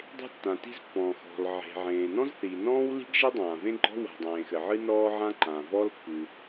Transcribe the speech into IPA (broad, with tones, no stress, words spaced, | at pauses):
dˤe̤˥tːã˩ti̤˥z pːɔ̃˩xɔ̤˩l ʕe̤˩ ʕẽː˩nɔ̃˥zθiː˩ nɔ̃ː˥wli̤˥ɡ ʒi˥dˤãː˩vẽ˥ɡ͡ǃɔ̤˥ wa̤˩dˤẽː˩xɘ˩ʕɨ˥ nɔː˥ʕã˥ ǃã˩vɔ˥lpːɨ˩